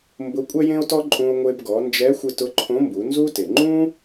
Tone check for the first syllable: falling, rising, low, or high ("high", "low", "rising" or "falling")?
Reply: rising